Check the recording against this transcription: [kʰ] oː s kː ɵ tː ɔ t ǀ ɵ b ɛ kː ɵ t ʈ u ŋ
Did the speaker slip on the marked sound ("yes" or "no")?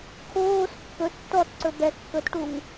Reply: no